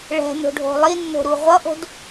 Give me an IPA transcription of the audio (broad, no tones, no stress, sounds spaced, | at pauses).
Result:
ɭ ɛ̤ n o̤ ɖʱ o̤ lˠ i nː o̤ ɾ u ʁʷ ʌ ʔ o̤ d